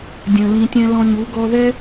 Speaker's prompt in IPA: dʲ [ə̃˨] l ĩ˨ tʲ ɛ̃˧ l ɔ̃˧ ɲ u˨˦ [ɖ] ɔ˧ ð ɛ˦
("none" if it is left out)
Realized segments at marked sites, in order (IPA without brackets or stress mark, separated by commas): ə̃˨, ɡ